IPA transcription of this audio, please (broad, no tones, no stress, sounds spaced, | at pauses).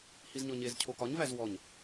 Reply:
h i z ɲ ɔ ɲ e z cʰ o k ɒ ɲ v æ z w ɔ ɲ